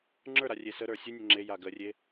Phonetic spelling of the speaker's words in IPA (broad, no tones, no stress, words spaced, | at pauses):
ŋ͡ǁə˞ɾa rʲesəɾə˞ sʲunʲə ŋ͡ǁe jaɡərʲe